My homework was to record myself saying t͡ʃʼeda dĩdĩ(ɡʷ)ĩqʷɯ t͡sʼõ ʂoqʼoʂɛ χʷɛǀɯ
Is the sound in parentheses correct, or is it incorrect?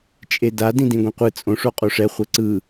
correct